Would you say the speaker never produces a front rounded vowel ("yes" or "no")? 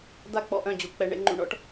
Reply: no